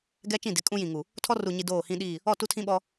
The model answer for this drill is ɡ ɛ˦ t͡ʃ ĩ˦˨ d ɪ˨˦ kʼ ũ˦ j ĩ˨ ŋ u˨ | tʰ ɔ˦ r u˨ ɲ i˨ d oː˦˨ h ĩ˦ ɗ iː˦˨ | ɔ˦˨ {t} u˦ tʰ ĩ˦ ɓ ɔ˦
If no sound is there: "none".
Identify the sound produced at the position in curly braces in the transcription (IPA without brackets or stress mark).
t